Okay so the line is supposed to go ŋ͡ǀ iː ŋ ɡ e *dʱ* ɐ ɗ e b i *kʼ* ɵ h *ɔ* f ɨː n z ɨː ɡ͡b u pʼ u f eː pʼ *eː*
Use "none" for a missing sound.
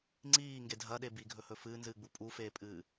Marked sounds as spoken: dʱ, ɡʱ, ɵ, ɨː

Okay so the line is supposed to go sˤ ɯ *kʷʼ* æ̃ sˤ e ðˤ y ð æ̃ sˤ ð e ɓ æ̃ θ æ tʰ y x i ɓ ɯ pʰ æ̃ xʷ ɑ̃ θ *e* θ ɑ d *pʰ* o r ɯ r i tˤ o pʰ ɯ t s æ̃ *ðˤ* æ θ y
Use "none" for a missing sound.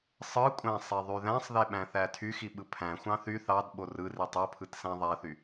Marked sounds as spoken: kʷʼ, y, ɓ, ðˤ

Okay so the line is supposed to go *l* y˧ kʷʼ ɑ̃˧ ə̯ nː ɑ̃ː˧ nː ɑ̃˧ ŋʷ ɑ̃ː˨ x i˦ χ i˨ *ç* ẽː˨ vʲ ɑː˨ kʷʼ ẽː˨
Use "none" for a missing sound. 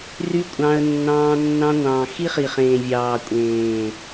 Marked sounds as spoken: r, χ

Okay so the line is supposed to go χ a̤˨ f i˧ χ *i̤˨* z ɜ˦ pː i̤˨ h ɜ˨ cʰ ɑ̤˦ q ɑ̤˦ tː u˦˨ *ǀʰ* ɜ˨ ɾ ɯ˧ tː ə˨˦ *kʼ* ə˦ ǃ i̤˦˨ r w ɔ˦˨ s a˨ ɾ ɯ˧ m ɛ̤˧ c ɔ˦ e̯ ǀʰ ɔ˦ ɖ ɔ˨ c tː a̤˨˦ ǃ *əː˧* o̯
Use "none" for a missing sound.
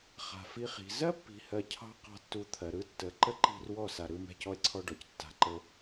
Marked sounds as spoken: i̤˨, t̪ʰ, ǃ, ə˧

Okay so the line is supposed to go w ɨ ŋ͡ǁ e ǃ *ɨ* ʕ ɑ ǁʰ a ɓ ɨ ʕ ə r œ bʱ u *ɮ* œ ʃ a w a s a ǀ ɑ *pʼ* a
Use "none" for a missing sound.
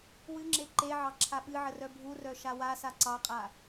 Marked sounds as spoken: e, r, qʼ

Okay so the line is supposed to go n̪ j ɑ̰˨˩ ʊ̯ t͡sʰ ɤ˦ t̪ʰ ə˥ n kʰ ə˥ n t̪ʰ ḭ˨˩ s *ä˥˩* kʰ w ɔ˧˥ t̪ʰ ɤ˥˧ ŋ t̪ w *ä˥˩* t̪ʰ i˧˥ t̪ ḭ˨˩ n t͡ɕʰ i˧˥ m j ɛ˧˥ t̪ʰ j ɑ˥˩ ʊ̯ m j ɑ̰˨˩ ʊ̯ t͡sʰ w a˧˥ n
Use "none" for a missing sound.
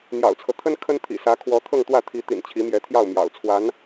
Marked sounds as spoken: ä˧˥, ä˥˩

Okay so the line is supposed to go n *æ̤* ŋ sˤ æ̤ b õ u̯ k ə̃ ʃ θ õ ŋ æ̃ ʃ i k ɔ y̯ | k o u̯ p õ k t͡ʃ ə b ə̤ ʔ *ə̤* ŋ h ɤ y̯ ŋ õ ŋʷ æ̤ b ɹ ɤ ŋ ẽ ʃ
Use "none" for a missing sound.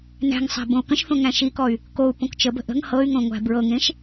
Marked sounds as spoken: æ̤, ə̤

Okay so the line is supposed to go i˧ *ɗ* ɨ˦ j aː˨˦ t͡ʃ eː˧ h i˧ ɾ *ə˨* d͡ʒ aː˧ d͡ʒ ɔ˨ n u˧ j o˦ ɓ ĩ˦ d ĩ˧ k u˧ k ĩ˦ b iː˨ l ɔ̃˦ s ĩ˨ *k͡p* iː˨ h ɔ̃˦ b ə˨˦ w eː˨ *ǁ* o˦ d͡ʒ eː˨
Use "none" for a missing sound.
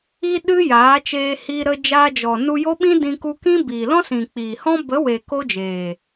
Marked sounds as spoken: ɗ, ə˧, k͡p, k

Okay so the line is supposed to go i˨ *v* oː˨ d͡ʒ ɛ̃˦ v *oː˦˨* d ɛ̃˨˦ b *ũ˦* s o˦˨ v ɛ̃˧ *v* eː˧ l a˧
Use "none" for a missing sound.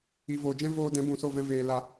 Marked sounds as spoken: v, oː˧, ũ˨, v

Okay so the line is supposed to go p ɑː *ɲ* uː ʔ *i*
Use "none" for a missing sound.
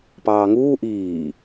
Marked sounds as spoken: ŋ, iː

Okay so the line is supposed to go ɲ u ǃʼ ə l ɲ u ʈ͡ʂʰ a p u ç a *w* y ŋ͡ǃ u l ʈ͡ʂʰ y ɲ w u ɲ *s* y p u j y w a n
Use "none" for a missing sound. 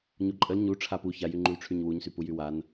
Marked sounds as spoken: j, s

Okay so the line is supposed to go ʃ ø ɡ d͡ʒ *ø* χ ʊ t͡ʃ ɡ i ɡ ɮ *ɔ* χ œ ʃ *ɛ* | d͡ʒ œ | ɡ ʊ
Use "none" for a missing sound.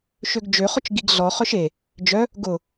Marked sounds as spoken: ø, ɔ, e

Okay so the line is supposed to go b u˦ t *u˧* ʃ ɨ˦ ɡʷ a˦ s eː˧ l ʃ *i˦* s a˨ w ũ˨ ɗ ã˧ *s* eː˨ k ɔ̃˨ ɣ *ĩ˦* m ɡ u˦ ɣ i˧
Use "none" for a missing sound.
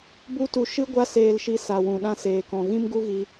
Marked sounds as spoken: u˧, i˧, s, ĩ˦

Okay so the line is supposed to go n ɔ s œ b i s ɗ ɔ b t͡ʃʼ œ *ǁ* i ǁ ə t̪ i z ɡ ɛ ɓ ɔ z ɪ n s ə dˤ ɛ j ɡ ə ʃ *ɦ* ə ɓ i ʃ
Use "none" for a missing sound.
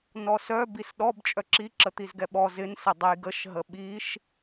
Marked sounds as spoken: ǁ, ɦ

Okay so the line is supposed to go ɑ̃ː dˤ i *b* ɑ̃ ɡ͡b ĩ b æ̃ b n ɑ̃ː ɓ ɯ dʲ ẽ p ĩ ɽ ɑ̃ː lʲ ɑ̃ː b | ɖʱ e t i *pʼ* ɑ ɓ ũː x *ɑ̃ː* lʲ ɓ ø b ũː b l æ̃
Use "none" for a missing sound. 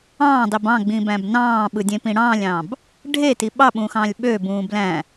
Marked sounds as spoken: b, ɓ, ɑ̃ː

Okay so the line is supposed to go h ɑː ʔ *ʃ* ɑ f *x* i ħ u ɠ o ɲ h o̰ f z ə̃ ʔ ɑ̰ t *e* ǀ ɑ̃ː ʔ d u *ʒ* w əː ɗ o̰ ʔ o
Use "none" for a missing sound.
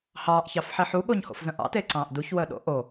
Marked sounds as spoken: ç, ħ, e, ç

